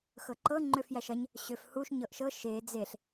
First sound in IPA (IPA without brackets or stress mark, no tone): x